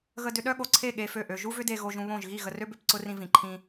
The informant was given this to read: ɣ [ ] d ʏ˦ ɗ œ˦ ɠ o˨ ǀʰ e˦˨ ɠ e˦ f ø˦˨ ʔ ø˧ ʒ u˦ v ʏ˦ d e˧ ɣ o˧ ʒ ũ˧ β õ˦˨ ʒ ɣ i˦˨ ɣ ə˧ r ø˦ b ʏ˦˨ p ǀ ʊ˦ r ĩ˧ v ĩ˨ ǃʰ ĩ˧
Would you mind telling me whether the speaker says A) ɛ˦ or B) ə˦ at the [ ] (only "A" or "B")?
B